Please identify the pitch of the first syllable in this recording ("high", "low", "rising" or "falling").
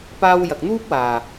high